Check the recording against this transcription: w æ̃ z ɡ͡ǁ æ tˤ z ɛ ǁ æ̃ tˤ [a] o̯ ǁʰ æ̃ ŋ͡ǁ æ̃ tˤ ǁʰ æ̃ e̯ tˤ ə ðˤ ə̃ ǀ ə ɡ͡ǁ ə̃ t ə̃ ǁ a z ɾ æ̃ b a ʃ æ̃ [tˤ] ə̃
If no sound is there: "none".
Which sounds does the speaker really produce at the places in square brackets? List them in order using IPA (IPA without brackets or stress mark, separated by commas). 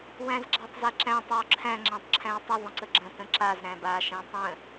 æ, tˤ